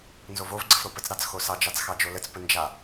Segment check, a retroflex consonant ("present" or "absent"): absent